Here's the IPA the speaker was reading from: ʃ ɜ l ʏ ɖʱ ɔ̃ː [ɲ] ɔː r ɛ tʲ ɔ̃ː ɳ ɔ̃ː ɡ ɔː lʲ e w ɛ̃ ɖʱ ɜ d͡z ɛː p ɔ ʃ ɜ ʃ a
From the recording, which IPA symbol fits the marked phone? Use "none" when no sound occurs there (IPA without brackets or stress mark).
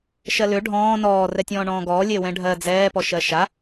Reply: n